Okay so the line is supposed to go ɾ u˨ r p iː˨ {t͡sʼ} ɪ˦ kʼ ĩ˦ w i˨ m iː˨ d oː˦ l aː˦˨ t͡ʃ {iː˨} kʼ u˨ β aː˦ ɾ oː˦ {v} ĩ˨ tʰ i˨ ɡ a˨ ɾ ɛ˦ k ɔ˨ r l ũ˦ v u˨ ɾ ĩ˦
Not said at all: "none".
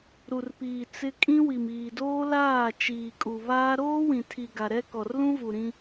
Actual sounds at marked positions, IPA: t͡s, iː˨, w

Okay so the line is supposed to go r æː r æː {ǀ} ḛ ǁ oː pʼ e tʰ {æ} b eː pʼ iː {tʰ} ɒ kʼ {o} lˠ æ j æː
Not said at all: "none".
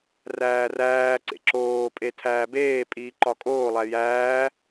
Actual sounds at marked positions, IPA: ǀ, æː, ǃ, oː

